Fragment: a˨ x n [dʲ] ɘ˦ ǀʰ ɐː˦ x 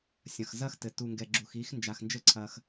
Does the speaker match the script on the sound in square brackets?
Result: no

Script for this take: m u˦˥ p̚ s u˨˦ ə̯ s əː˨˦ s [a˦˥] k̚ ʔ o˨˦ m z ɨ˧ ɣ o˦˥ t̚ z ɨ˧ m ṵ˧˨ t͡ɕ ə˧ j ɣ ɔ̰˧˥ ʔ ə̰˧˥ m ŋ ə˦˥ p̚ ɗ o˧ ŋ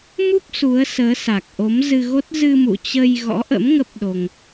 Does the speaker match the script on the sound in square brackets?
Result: no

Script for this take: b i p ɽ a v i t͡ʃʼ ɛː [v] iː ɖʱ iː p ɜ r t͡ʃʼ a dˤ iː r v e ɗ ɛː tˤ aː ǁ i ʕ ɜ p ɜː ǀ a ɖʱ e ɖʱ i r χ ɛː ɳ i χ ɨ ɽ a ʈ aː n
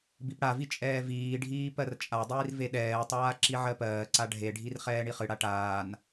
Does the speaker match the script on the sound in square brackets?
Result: yes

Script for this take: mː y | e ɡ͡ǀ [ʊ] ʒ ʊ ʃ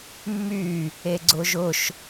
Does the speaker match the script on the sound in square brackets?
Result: yes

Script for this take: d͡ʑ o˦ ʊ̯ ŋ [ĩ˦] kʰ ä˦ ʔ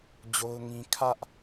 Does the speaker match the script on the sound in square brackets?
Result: yes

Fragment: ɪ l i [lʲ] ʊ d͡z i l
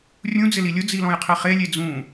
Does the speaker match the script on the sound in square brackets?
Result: yes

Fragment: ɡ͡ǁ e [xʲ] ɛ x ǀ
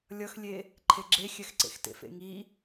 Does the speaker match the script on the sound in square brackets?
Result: yes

